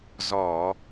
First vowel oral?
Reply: yes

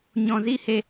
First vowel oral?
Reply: no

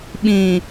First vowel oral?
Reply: no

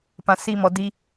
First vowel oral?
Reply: no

